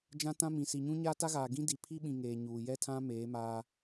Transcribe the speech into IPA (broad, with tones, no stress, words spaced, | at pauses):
d͡ʒã˦tã˦mĩ˨ si˨ɲũ˦ɲaː˦ta˦ ɣaː˨ɡĩ˦ di˨ pʰi˦ɓĩ˨ ŋeː˨ ɲuː˨jɛ˦tʰã˦ meː˨˦maː˦